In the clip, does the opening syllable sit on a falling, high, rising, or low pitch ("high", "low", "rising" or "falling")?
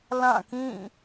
falling